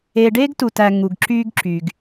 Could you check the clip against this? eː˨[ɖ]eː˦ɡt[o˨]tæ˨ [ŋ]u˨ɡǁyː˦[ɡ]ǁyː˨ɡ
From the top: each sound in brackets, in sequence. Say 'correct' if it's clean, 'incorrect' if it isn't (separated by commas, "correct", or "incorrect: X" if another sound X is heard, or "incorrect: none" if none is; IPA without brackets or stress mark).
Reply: correct, incorrect: u˨, correct, correct